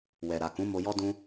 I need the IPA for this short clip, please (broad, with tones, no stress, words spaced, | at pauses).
wɛ˨ɾa˨kũ˨˦ mo˧jɔ˦dũ˦